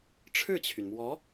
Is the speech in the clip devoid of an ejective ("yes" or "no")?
yes